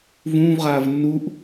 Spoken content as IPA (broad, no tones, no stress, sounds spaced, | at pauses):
v ũː v ʁ aː v nː u ʔ